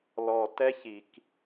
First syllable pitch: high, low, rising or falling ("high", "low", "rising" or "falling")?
low